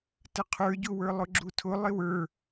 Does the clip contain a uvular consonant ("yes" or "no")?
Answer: yes